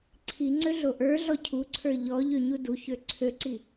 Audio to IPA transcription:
ǀʰ i ŋ͡ǀ ø ɮ o ʔ ə˞ ɮ ɔ cʰ u ǀʰ ə˞ ʎ ɔ ʎ ø ɲ u d u ç ø ǀʰ ø ǀ i

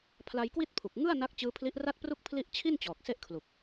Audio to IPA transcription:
pʰ l a˧ j k w i˥˩ t̚ pʰ u˨˩ k̚ ŋ ɯ˥˩ a̯ n a˦˥ k̚ t͡ɕ ɯː˦˥ pʰ l i˦˥ ʔ r a˥˩ t̚ p r u˥˩ k̚ pʰ l i˥˩ ʔ t͡ɕʰ i˥˩ n t͡ɕ ɔː˨˩ k̚ s e˥˩ ʔ kʰ l u˨˩ k̚

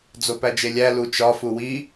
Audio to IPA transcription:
d͡z o p æ d͡ʒ e lʲ æ l u t͡ʃ ɒ f u w i

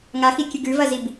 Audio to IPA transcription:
ŋ a x i kʲ ɨ ɡ ʉ v ɐ z i b

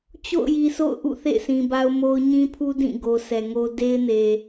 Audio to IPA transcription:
t͡ɕ o̰˦˨ ʊ̯ j i˨ s o̰˦˨ ʊ̯ ʔ ṵ˦˨ θ ḛ˦˨ ɪ̯ s ĩ˨ b a˦ ʊ̯ m o˦ ʊ̯ ɲ ĩ˦ pʰ u˦ d ĩ˦˨ ɡ o˨ sʰ ɛ˨ ŋ o˦ d e˦ ɪ̯ n e˨

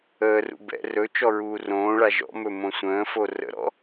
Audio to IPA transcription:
əː r ṵ b ɛ̰ r ɵ t͡ʃ ɔ ɹ uː r õː ɭ a ʒ ɔ̰ m ɵ m õ sʷ ə̃ː f o r ə̰ ɾ ɔ̰

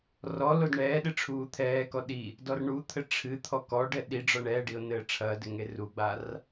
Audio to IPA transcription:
r ɔ l o d ɳ ɛː ɗ ɨ ʈ͡ʂʰ uː t̪ʰ ɛː k ɔ ɗ i | d ɔ r ɳ u t̪ʰ ɘ ʈ͡ʂʰ ɨ t̪ʰ ɔ k ɔ ɖ ɛ ɗ i ɖ͡ʐ ɔ ɳ ɛː ɖ i o̯ n ɘː ʈ͡ʂʰ ɐː d ɘ ŋ e r u ɡ͡b a r

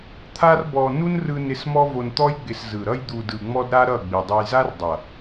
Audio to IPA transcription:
t̪ʰ a˦ r b ɔ˧ n u˦ n r ɯ˧ n ɪ˧ s m ɔ˦ v o˧ n t̪ ɔ˦ j ɡ͡b ɪ˧ s z ɯ˨ ɾ ʌ˧ j d̪ u˨ d ɯ˨ ŋ͡m ɔ˦ d ɾ a˦ ɾ ʌ˦˨ ɡ͡b i˨ dˤ ʌ˧ j z a˦ r dˤ ʌ˨

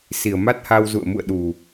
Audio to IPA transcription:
s i˨˩ ə̯ m a˦˥ t̚ h a˧ w z ṵ˧˨ ə̯ m ṵ˧˨ ə̯ ɗ u˨˩

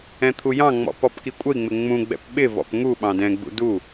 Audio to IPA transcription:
ɛ̃ t̪ʰ u j ɑ̃ ŋ͡m ɔ̰ p ɔ p k i kʷʼ ə i̯ ŋ͡m ɪ ŋ͡m ũ ɡ͡b ɛ̰ p ɓ ɪ v ɔ̰ p ŋ u ɓ ɑ̃ d ɛ̃ ɡ͡b ṵ d u

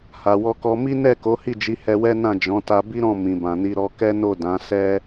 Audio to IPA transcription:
h a˨ w ɔ˧ k ɔ˧ m i˦ n ɛ˦˨ k o˨˦ h i˦˨ d͡ʒ i˨˦ h ɛ˧ w ɛ˦ n ã˦˨ d͡ʒ ɔ̃˨˦ t a˧ b i˦ ɾ ɔ̃˦˨ m ĩ˨ b ã˨ n i˧ ɾ ɔ˧ k ɛ˦ n o˦˨ d ã˨˦ s ɛ˦

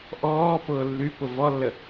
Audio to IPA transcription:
ʔ ɔː p ʊː lː y p ʊ v ɔ lː ə

